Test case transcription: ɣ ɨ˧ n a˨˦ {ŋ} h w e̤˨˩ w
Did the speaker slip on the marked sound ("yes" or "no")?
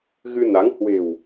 no